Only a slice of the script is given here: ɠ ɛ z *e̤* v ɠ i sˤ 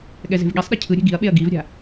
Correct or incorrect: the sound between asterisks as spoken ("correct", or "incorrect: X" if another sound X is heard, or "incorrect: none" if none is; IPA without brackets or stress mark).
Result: correct